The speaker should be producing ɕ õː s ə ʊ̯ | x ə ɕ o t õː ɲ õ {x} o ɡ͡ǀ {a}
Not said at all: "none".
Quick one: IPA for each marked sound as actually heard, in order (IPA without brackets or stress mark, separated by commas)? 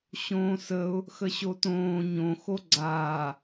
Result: x, aː